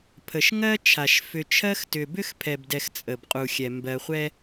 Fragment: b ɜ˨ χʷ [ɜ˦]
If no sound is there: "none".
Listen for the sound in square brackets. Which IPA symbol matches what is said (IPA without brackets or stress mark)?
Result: ɛ˦